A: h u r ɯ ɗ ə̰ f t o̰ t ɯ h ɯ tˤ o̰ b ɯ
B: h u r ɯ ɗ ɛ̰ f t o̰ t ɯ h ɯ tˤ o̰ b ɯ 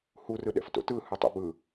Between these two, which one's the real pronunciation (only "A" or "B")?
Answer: B